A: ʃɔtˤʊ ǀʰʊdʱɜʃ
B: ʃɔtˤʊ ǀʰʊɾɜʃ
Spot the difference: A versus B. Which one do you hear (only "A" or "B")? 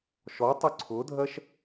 A